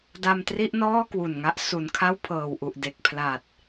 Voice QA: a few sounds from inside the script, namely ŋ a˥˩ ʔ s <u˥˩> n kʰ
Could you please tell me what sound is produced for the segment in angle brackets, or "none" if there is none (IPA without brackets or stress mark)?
u˨˩